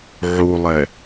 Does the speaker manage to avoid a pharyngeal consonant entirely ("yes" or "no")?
no